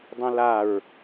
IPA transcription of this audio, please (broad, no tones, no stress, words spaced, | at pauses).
dˤɛ̃laɹ